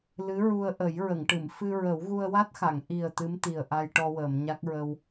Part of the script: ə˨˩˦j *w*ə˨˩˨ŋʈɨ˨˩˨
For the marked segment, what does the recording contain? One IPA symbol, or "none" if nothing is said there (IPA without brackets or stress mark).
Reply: ɹ